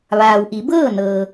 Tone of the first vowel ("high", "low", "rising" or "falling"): low